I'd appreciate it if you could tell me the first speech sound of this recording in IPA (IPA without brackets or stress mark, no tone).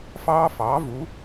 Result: f